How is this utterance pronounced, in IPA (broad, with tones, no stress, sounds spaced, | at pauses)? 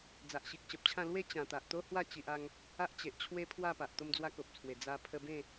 d͡z a˨ ʔ ɕ i˨ k̚ ɕ ə˨ p̚ t͡ɕʰ ã˥˧ l w e˥˧ t͡ɕ ã˨˩ t̪ a˨ ʔ t̪ o˦ h w a˥˧ t͡ɕ i˨ ʔ a˧ ŋ | a˦ ʔ t͡ɕ e˨ ʔ t͡ɕʰ w e˦ pʰ w a˥˧ p a˨ ʔ t̪ o˦ m d͡z w a˦ k o˨ p̚ t͡sʰ w e˨˩ d͡z a˧ pʰ ə˧ b ẽ˥˧